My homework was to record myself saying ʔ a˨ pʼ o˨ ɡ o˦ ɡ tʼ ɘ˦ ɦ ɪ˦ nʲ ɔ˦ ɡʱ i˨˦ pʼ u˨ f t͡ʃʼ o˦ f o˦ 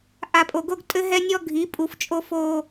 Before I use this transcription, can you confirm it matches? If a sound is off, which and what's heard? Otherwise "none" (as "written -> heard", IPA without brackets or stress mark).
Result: ɪ˦ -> ɛ˦